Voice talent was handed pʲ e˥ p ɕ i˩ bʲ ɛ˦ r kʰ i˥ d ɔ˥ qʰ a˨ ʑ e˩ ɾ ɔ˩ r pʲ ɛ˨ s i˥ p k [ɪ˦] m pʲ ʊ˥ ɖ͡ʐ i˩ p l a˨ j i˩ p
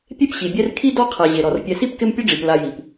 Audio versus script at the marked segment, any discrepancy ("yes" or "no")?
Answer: no